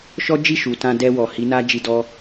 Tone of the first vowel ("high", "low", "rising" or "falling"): high